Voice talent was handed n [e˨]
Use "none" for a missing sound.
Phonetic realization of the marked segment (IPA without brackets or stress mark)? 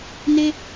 e˦